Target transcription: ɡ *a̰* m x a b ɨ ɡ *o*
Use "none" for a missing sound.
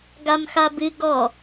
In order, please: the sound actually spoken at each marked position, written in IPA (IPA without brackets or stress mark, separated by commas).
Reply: a, ɔ